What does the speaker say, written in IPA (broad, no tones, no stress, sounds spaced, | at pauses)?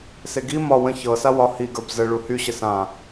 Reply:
s e ɡ i m ɒ w ə̃ ç ɤ s a w ɒ h i ɡ ə˞ b z ə ɭ u h y ɕ ə s ã